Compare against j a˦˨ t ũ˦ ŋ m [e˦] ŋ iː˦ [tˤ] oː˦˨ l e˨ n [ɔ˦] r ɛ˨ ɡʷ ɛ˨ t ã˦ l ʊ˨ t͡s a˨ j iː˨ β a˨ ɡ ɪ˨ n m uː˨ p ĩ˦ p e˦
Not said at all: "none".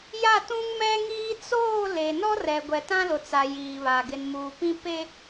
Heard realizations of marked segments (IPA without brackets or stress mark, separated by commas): ɛ˦, t͡s, ɔ˦